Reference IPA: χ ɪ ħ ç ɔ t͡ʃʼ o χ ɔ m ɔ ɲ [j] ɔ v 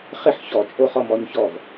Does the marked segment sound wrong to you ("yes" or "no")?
yes